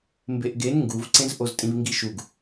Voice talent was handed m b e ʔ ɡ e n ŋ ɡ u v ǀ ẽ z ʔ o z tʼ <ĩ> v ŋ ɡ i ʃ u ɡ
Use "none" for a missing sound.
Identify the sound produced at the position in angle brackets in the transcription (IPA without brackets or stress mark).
ĩ